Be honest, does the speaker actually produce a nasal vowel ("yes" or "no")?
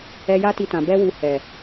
yes